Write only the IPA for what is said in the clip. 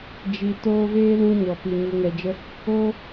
d͡ʒ i˨ t oː˧ v eː˦ l ũ˧ ɲ ɔ˨ p i˨ ɲ u˨ ŋ ɛ˨ d͡ʒ ə˧ | oː˦

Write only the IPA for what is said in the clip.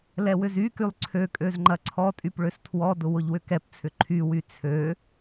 l ɛ w ʏ z y k y lˠ ǀʰ ø kʼ ø z ŋ͡ǃ ɐ ǀʰ ɔ tʼ y p ɭ ø s tʰ w ɔ d ʊ w ʊ ʎ w ʏ k ɛ p t͡sʰ ʏ ǃʰ y w y t͡sʰ ø

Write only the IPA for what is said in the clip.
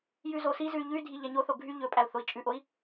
j ʉ z o s i z ʉ y̯ ʎ ʉ y̯ dʱ i ʎ æ ɲ o θ o ɡʱ y ʎ ɵ pʼ æ u̯ θ o i̯ t͡ʃʼ ʉ ʔ o i̯

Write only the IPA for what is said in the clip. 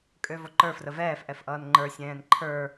kʼ ø v o ǃ ə˞ f r ə v ɛː f ʔ ɛ f ʔ ʌː n ŋ͡ǃ ə˞ sʲ ɛ̃ː n ǃʰ ə˞

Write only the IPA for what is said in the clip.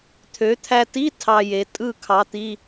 t̪ʰ ø˩˧ t̪ʰ æ˧ t i˧˥˧ tʰ ɑ˧ j e˩˧ tʼ ɯ˥˧ kʰ ɑ˧˥ t̪ i˧˥˧

